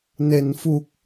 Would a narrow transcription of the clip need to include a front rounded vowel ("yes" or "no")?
no